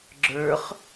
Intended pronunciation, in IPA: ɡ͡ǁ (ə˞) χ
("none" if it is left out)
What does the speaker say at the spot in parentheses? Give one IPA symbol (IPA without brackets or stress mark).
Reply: ə˞